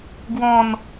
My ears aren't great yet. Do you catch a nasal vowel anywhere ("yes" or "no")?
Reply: yes